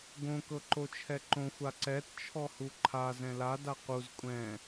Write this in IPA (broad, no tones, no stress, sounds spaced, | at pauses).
ɡ õ k ɤ ǃ o t͡ʃʰ ɛ ǃ õ xʷ a ǀ ɛ t t͡ʃʰ ɔ h u ǃʰ a z ɛ̃ l a d a q u z kʷʼ ɛ̃